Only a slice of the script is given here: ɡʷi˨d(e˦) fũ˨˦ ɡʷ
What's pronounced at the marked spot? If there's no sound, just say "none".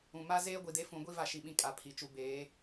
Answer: e˦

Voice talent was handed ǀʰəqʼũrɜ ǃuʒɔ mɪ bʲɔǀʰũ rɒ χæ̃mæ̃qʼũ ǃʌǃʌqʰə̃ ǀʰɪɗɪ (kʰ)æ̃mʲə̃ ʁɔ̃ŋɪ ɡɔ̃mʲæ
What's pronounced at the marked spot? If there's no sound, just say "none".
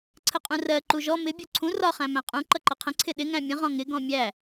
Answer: ŋ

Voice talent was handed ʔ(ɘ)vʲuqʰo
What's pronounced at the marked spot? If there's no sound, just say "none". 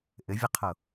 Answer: ɘ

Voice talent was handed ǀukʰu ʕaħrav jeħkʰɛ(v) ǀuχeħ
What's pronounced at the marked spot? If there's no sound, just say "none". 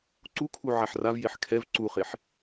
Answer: v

